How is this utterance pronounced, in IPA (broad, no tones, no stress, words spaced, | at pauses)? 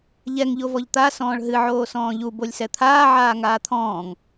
ʎɛŋ ʎovɔʎt̪a sɔ̃ːɭɦɨ ʕoːsɔ̃ːʎu bolʲsɛt̪ʰaː ʕaːŋaːt̪ʰɔ̃ːŋ